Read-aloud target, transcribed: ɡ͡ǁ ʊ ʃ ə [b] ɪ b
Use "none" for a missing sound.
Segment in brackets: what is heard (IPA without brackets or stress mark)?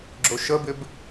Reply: b